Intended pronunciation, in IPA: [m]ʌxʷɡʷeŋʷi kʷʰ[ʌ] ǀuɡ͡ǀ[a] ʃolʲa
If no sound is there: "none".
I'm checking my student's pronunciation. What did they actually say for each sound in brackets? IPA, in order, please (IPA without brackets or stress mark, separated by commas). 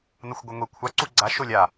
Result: n, a, a